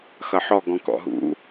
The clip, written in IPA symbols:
x ʌ ħ ɔ ɡ ɔ̃ k ɔ̰ ɦ ṵ

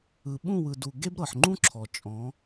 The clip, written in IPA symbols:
ɯ˨ ɓ ũ˦˨ w ɯ˨ d u˨ ɡ e˦ b ɾ ɤ˨ ħ ŋ͡ǃ ũ˦ ǁʰ ɔ˨ t͡ʃʼ ɔ̃˨˦

